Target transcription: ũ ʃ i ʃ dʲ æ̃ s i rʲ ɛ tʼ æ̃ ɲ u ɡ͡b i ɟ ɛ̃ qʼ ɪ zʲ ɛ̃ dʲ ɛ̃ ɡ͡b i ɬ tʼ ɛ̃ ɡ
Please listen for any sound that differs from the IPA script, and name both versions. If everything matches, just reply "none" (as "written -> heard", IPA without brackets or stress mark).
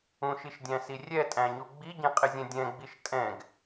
ɬ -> ʃ